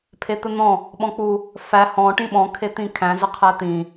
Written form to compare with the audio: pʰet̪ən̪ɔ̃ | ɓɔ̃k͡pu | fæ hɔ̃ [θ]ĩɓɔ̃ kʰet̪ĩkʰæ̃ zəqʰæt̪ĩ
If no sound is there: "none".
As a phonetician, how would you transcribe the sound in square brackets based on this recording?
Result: ʈ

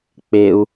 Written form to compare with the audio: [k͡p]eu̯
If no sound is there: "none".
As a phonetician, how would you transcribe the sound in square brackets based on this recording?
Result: k͡p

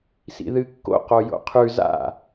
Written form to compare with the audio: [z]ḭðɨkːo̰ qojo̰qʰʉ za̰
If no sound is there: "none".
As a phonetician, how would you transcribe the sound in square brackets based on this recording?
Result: s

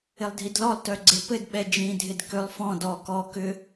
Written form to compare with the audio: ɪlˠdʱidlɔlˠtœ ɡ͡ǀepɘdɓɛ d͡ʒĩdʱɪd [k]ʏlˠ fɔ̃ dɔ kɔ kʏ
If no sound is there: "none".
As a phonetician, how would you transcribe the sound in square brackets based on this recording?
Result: k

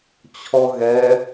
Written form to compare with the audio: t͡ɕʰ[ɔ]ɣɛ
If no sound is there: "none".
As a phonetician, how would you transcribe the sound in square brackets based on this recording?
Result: ɔ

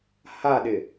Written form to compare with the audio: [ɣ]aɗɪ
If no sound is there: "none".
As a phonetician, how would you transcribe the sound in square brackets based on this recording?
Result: h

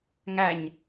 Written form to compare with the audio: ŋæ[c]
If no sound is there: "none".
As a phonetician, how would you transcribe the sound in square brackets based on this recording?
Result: ɲ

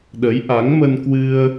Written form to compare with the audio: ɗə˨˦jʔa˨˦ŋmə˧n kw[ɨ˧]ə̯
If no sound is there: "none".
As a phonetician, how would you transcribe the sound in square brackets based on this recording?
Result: ɨ˧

